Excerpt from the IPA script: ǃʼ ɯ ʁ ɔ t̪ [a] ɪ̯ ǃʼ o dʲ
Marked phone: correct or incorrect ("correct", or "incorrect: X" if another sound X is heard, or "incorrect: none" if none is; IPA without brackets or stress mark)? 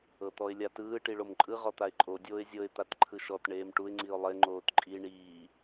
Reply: correct